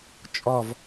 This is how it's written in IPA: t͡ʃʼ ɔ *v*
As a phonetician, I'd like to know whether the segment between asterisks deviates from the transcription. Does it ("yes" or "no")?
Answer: no